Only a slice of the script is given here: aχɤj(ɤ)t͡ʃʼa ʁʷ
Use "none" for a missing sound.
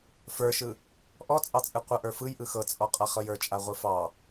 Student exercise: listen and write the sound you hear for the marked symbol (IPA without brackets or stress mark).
ə˞